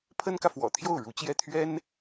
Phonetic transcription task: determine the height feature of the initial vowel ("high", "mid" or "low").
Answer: mid